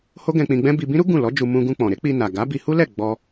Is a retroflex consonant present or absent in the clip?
absent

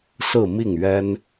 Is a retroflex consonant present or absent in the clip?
absent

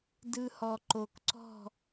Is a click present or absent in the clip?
present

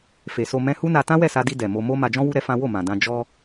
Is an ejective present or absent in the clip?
absent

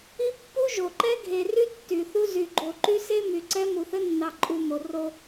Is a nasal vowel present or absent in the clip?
absent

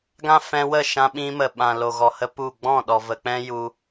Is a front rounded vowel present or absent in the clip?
absent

